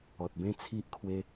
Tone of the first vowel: low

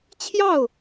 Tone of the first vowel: falling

